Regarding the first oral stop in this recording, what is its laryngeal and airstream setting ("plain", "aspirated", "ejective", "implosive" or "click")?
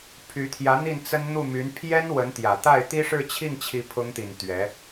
aspirated